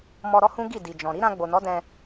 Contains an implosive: no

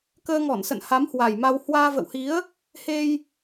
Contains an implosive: no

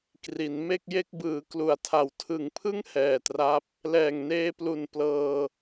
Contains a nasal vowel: no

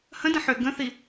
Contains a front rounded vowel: yes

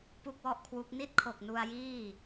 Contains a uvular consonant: no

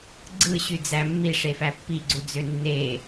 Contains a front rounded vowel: yes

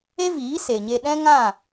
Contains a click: no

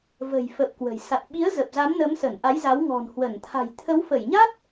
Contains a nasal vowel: no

